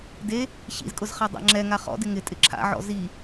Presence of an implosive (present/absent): absent